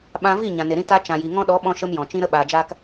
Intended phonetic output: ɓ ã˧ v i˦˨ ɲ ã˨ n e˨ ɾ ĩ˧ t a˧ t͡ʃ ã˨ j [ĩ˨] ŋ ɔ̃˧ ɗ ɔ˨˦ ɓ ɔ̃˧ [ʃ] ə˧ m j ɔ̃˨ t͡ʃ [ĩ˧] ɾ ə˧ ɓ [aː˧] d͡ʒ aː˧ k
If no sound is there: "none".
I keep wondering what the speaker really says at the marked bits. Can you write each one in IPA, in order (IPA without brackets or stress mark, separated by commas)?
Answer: i˨, ʃ, ĩ˧, aː˨